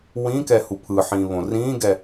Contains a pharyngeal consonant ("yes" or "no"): yes